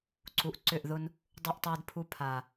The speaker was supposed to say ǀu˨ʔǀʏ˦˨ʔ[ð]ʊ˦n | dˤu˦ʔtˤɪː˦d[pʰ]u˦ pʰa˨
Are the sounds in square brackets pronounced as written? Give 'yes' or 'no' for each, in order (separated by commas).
yes, yes